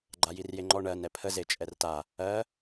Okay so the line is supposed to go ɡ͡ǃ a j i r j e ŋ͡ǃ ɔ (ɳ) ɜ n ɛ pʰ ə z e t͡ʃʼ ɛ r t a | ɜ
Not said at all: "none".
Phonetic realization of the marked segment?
ɳ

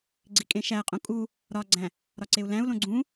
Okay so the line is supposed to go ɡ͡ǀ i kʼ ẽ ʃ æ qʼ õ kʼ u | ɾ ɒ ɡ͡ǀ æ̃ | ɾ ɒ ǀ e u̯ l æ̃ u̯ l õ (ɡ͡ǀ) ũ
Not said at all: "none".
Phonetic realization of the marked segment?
ɡ͡ǀ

